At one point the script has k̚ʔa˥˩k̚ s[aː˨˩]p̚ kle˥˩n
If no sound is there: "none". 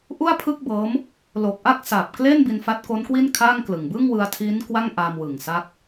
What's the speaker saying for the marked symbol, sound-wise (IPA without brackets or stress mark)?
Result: a˨˩